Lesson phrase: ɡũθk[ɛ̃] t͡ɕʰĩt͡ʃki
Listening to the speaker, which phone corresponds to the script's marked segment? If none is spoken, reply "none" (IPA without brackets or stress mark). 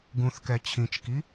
ɛ